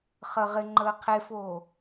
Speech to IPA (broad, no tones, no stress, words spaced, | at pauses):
χə ʁɪŋ͡ǃəː qʰefoː